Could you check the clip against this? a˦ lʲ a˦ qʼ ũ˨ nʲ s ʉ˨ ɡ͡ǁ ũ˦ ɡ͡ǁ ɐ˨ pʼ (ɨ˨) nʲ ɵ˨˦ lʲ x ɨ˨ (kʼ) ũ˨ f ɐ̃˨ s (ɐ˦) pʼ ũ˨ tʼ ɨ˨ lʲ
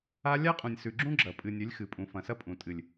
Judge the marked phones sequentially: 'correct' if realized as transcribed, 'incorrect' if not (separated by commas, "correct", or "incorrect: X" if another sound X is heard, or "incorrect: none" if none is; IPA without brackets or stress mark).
correct, incorrect: pʼ, correct